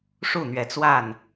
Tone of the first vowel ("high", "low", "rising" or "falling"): falling